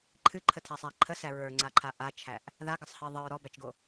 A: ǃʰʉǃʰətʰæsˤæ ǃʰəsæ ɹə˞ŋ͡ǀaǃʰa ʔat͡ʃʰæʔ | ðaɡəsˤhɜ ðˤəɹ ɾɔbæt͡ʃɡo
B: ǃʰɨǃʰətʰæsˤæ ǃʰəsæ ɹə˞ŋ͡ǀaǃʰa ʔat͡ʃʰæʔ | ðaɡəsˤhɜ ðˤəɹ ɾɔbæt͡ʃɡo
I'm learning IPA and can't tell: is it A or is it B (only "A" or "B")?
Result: B